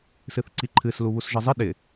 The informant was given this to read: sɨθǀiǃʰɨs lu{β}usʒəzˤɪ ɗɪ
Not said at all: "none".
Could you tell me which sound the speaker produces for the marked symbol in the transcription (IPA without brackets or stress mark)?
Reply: β